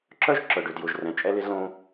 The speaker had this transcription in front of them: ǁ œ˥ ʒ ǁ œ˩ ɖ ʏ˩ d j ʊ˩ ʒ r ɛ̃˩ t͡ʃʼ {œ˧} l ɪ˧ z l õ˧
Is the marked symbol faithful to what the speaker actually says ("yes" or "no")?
no